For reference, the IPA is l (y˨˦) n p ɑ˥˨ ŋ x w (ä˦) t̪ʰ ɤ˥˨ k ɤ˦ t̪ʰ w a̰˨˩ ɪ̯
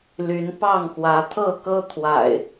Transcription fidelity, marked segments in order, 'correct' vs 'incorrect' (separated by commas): correct, incorrect